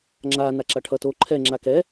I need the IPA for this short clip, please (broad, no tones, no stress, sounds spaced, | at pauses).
ŋ͡ǁ a n a ǁ a ʈʰ ʌ t o ǃʰ ɛ ŋ͡ǁ a k ɛ